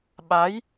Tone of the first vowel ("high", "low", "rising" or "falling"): rising